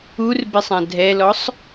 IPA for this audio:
urbesˤã dʱɛlɔsˤ

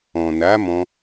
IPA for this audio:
ɔ̃˨na˨˦mɔ̃˧

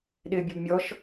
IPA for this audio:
ɗɪːbʲɔbmʲɔʃ

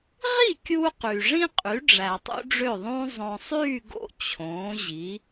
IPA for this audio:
ʁi˥˩kʲu˧ qy˩ʐĩ˥qʼy˩˥ɖ͡ʐæ˩ tˤṵ˥ɖ͡ʐø˥˩ðˤũː˥ zˤõ˩sˤyː˥˩ ɡo̰˥˩t͡ɕʰõː˩˥ʑi˩˥

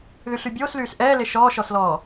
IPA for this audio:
ðyɬybʲoːslyːs ʔɛːle ʃɔːʃɔslɔː

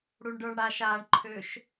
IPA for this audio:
ɽuɳɖə˞ɳɽaʃ aɳǃʰøʃ

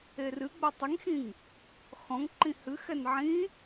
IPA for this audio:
erɨɡ͡bɛ tˤiŋxĩŋ | xɔ̃ŋǃĩ hɨxɛn ʕĩ

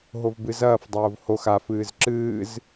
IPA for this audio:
ɦovbɨzɐːf dˤoːvhox af ɨːzǁɨːz

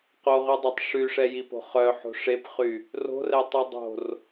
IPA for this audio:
qoʁydˤøtˤ ʂyʂɛjipo̤ χœħo̤ ʂepχy | ro̤rɛtˤy dˤo̤r

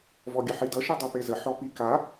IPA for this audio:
vɔɡʲəħidʌ ʃidˤipezə ħɔpika

